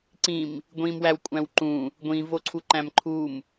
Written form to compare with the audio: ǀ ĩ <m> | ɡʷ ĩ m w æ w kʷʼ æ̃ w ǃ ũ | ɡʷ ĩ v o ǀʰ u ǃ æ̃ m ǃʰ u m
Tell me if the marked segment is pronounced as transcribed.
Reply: yes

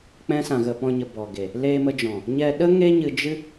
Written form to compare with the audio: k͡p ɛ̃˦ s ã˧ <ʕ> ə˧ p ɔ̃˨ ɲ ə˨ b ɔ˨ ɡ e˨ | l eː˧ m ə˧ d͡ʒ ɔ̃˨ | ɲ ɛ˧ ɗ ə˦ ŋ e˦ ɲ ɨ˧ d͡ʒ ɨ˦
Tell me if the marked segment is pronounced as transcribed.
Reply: no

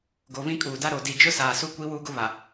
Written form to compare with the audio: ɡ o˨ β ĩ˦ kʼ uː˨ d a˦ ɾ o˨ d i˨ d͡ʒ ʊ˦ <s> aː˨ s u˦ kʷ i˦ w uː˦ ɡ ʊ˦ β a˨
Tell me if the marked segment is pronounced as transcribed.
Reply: yes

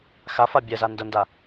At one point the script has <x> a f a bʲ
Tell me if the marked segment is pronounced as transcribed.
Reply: yes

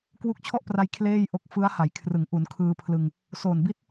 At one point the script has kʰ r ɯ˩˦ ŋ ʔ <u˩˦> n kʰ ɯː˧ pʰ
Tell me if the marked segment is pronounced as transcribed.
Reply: yes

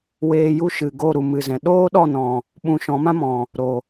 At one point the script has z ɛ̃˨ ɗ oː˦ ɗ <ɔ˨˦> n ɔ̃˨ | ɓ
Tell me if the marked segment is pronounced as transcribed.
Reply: no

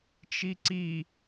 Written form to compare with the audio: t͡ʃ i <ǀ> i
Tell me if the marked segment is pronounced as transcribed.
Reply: yes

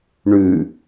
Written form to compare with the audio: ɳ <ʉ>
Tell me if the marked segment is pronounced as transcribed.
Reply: yes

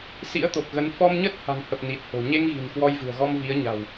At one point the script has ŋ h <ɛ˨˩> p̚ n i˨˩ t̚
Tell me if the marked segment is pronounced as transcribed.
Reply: no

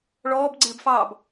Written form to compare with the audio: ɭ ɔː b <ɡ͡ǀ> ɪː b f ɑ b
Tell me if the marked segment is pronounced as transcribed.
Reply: yes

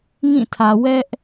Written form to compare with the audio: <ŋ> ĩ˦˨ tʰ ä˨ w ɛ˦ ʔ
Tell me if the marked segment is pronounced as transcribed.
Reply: yes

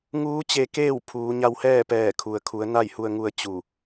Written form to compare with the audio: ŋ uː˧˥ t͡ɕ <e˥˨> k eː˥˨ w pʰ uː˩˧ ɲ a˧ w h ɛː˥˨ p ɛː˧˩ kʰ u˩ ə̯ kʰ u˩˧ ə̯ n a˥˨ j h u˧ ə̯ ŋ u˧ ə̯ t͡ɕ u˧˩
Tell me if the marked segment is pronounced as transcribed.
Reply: no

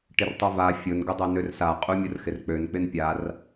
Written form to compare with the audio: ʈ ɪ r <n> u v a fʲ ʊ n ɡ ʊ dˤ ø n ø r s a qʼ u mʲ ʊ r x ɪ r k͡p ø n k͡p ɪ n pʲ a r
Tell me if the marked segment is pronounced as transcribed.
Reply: no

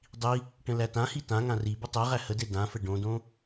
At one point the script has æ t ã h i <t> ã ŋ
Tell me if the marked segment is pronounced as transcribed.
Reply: yes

